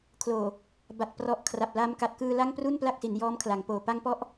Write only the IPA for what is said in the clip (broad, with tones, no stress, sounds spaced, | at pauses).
kʰ l oː˨˩ | b a˨˩ t̚ p r ɔ˨˩ ʔ kʰ r a˨˩ p̚ l a˧ m k a˨˩ t̚ k ɯː˧ l a˥˩ ŋ p r u˥˩ n p l a˥˩ k̚ s i˩˦ n j ɔː˦˥ m kʰ l a˩˦ ŋ p oː˨˩ p a˦˥ ŋ p ɔ˦˥ ʔ